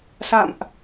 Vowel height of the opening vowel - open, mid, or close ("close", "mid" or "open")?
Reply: open